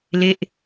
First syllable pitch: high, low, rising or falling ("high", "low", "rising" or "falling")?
falling